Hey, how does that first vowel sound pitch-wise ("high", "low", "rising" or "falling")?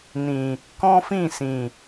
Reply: low